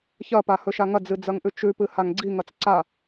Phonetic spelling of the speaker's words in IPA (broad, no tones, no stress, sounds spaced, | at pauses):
ç ɐ p a h ɵ ʃ a ŋ ɐ d͡z ɨ d͡z ɐ ŋ ʔ ʉ t͡ʃ ʉ p ɨ h a ŋ ɡ͡ǀ i ŋ ɐ t͡s ǀ a